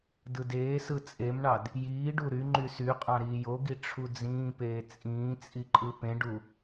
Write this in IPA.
d ɯ d eː s ɯ t͡sʼ e m ɳ ɑ d | j iː ɖ u ɾ y ŋ͡ǃ y s y qʼ ɑ̃ ɾ iː j o ɡ i ʈ͡ʂʰ u d͡z ĩː p eː t͡sʼ ĩː t͡sʼ i ǃʼ ɯ p ẽ ɖ u

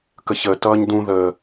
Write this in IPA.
k ə ç ə t ʌː ɲ d ũ ð əː

